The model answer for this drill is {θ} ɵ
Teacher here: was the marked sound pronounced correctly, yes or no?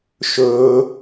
no